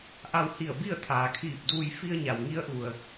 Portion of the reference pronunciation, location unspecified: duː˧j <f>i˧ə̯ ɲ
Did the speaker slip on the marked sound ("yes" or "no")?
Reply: no